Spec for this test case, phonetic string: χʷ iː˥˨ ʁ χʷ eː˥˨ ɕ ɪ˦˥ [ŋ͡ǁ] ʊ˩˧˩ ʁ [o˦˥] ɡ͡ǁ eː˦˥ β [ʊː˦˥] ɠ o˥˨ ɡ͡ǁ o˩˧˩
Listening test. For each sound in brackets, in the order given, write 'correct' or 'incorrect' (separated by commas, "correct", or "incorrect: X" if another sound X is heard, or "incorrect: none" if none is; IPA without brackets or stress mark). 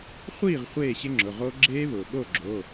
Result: correct, correct, incorrect: ʊː˩